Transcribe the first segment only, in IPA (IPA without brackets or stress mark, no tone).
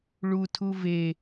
ɭ